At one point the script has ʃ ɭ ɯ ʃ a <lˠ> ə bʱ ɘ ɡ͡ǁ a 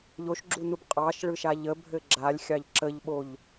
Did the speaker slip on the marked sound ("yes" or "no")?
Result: yes